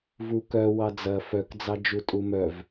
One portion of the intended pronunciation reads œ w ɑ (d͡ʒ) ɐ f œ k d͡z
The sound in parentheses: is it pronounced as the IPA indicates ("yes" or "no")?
no